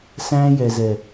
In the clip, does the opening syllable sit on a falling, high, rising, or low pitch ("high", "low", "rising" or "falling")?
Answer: high